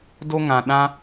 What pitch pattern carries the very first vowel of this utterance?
high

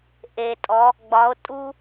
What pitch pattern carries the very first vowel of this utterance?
low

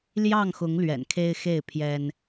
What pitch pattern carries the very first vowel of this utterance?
falling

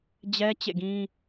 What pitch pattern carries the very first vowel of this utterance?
high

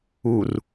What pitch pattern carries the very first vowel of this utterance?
low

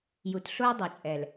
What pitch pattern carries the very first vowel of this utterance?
low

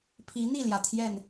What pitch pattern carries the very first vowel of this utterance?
rising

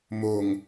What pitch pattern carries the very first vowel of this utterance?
low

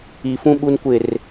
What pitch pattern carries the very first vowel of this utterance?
low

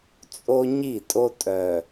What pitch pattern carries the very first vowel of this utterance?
high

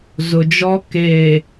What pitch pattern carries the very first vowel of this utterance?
low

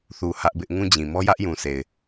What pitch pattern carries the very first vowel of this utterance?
low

